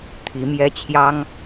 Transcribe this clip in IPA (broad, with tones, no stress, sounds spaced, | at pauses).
t̪ʰ i˧˥ m j ɛ˥ t͡ɕʰ j ɑ˥ ŋ